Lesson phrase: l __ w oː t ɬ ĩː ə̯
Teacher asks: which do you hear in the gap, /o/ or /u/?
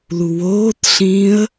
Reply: u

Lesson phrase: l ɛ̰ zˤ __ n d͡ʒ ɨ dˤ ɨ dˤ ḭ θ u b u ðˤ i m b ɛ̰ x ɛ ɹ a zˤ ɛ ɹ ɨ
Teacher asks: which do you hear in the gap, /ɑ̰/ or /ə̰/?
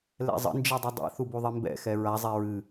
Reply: ə̰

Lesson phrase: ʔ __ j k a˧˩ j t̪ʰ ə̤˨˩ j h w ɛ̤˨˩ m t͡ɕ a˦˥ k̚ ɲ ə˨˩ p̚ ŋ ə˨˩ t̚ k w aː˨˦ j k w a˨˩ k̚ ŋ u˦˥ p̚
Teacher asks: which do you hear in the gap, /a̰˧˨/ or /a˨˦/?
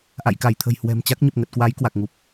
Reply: a̰˧˨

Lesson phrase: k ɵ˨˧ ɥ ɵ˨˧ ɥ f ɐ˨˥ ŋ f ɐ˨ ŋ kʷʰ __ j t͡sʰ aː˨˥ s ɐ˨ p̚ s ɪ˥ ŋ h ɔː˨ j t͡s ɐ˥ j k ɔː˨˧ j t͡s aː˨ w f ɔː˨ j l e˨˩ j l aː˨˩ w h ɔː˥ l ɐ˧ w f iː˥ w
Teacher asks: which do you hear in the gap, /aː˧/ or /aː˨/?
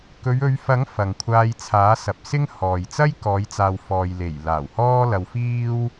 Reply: aː˧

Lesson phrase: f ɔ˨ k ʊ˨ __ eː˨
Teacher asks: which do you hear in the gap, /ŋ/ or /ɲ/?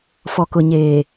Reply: ɲ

